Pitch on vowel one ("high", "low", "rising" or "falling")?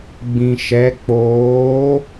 low